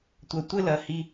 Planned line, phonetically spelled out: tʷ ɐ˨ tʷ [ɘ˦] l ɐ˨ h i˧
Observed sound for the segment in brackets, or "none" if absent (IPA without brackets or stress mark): ɘ˦